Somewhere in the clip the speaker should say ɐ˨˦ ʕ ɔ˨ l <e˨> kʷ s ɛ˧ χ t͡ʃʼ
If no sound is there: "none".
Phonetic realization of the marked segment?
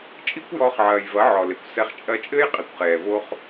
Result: e˨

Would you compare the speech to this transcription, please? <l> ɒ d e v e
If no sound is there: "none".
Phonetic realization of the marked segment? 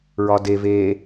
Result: ɹ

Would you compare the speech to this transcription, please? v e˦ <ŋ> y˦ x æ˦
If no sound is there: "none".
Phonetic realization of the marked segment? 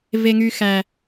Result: ŋ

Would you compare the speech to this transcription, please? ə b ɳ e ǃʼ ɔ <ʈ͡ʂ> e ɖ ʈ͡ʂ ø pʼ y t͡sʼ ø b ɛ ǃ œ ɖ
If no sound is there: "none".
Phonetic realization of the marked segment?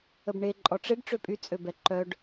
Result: ʈ͡ʂ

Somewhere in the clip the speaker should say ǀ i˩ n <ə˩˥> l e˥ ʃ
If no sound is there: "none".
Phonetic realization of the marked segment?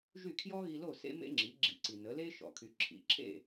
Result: ə˩˥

